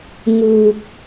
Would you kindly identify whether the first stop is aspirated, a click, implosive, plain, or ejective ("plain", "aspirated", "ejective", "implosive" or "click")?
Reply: plain